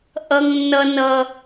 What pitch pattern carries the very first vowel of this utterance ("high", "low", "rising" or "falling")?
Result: low